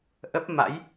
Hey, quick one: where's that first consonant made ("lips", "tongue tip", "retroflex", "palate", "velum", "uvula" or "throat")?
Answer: throat